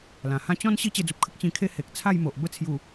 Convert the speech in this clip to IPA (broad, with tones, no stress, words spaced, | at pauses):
lã˨˩hã˥˧ t͡ɕɔ̃˦n ɕi˦t͡ɕe˧d͡zu˨p̚kʰə˦k̚ t͡ɕĩ˧kʰe˦ he˨k̚t͡sʰa˥˧jmo˨ʔ bə˧t͡sʰju˨˩